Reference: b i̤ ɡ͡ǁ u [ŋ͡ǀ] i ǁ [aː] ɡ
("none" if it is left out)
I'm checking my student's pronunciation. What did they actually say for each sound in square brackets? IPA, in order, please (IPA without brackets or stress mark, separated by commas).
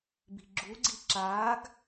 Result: ɡ͡ǀ, aː